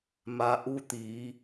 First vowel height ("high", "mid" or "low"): low